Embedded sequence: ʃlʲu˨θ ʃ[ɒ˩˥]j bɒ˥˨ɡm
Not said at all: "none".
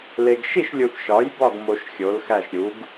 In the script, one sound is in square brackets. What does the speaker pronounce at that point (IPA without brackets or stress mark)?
ɒ˩˥